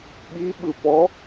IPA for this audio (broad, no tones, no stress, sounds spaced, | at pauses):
ɓ i ɓ ɯ p ɔ